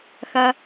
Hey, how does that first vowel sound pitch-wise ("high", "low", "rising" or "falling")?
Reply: high